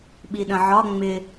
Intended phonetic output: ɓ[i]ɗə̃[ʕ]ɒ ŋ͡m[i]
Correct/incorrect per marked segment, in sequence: correct, correct, incorrect

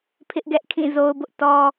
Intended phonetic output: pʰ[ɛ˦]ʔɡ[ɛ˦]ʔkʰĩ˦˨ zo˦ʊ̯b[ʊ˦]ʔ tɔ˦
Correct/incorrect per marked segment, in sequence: incorrect, correct, correct

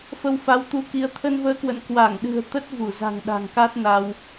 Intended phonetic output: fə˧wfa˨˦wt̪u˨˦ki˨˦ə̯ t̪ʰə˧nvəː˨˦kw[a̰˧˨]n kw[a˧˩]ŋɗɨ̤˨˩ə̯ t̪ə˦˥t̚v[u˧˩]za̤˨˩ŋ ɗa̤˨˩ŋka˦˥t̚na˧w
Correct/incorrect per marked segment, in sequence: incorrect, correct, correct

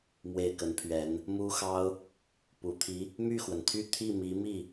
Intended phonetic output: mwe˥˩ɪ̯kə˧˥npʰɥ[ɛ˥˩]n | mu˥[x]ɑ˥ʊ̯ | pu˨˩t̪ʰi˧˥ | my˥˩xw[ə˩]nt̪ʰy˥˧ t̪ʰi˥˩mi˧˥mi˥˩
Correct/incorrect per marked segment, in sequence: incorrect, correct, correct

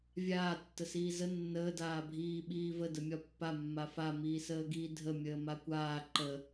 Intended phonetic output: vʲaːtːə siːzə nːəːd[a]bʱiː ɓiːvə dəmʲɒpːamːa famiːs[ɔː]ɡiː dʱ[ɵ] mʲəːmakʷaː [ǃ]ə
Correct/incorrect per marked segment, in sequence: incorrect, incorrect, incorrect, correct

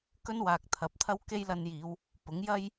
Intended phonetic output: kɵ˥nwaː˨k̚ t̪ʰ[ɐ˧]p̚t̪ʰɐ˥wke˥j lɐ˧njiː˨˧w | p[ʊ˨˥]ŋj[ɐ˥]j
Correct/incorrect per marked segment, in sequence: incorrect, correct, correct

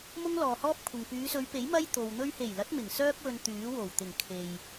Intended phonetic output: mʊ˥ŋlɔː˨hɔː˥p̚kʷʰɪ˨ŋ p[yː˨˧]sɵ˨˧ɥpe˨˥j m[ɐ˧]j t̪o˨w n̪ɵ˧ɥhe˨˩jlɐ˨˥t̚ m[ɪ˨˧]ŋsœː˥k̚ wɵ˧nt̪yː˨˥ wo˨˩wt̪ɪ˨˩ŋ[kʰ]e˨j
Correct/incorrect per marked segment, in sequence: correct, incorrect, incorrect, correct

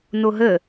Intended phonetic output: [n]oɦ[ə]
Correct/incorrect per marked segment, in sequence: correct, correct

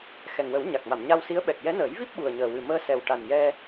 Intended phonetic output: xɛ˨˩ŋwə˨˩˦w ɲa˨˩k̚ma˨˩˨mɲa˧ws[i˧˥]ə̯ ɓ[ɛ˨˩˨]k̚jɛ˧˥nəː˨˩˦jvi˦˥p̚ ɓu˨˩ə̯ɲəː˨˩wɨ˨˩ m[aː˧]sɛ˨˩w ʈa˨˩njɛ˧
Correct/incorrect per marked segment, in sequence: correct, incorrect, incorrect

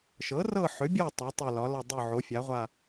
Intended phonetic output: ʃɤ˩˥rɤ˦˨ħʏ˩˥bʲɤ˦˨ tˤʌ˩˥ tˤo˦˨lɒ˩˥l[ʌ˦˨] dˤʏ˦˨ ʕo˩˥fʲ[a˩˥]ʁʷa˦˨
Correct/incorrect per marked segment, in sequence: correct, correct

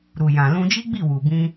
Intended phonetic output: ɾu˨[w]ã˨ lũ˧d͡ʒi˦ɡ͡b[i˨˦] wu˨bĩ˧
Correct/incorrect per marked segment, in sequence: incorrect, incorrect

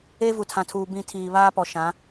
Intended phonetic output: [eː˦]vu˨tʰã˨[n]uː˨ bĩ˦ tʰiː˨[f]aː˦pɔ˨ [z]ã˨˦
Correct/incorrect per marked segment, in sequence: correct, incorrect, incorrect, incorrect

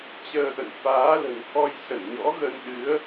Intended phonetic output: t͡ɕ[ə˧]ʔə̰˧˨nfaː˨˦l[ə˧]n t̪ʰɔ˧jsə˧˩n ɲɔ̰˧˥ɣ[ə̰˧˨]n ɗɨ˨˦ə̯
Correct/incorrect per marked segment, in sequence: incorrect, incorrect, incorrect

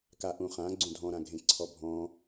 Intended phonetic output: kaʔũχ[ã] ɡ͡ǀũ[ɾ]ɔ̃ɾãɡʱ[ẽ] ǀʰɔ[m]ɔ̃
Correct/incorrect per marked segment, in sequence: correct, incorrect, correct, incorrect

